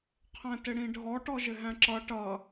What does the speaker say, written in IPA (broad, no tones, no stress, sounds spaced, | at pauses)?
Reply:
qʰ æ̃ t ɪ ɽ ĩ ɖʱ ɔ ʈ ɔ ʒ ɪ ɦ æ̃ ǁ ʌ ʈ ʌ